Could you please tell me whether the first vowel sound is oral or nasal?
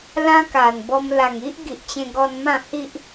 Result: nasal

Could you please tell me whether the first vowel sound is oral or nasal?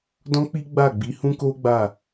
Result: nasal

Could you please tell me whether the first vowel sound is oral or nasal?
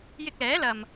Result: oral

